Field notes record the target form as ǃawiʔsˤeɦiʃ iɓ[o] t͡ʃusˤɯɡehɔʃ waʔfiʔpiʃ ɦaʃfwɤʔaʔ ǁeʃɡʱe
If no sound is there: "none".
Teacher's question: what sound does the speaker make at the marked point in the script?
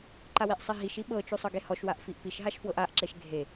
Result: ɤ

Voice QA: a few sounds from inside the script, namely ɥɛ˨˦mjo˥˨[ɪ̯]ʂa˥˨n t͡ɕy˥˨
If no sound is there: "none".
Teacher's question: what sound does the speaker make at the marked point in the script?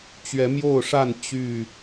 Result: ʊ̯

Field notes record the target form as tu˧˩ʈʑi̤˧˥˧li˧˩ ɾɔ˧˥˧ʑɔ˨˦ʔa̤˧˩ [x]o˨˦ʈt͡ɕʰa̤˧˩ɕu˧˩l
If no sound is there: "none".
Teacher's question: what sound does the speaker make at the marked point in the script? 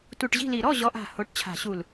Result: h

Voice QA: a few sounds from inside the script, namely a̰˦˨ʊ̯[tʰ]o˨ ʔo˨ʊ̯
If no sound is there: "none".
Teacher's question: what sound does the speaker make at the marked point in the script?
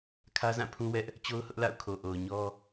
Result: kʰ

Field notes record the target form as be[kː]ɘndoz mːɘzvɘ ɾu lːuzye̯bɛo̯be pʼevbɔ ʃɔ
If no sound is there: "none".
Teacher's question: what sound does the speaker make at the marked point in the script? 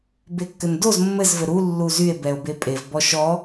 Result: kː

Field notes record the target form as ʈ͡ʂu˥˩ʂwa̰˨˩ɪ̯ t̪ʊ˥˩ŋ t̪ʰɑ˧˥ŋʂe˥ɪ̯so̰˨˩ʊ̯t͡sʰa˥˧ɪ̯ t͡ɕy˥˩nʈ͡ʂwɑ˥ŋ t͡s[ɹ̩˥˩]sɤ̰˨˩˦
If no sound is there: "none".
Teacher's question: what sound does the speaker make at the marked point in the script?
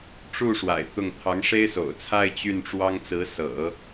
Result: ɹ̩˧˥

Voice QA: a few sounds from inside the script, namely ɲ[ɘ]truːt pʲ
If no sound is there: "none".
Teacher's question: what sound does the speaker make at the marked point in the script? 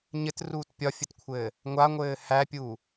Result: ɘ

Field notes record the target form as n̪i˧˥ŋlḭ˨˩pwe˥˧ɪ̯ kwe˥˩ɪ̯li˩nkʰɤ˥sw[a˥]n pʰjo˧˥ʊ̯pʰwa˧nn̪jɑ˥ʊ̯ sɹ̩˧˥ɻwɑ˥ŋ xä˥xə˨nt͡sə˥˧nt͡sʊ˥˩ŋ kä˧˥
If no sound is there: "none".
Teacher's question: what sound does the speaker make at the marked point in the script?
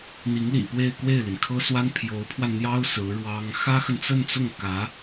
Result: a˥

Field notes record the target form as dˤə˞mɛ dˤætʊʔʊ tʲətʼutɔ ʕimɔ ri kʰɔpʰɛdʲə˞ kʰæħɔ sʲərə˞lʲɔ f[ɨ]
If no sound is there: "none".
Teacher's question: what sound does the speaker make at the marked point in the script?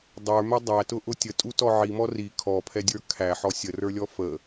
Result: ə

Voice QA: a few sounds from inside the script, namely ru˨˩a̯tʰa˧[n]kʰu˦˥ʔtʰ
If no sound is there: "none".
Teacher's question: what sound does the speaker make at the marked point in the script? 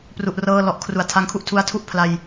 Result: ŋ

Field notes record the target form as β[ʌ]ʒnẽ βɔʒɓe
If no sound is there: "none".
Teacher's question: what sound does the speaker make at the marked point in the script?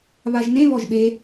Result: a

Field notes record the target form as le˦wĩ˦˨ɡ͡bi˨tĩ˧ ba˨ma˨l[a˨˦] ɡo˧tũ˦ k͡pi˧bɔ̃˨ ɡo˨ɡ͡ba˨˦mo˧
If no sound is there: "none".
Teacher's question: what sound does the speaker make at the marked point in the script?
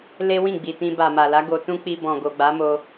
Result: a˨˦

